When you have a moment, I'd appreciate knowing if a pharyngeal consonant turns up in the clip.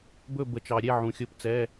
yes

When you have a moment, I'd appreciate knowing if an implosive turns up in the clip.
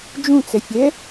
no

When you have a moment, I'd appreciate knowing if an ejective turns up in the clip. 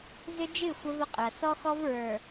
yes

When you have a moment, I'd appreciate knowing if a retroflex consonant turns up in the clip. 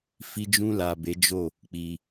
no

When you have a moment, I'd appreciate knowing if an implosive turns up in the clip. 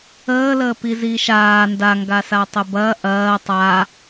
no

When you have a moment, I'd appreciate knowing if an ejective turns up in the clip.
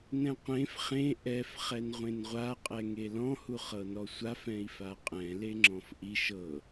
yes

